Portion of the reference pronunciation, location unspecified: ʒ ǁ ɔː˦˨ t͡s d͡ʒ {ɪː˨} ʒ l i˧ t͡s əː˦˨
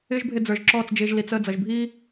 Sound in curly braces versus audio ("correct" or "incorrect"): incorrect